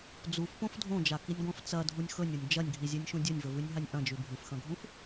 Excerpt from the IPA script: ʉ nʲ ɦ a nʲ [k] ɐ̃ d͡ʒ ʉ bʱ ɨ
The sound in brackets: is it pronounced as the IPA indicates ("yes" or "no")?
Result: no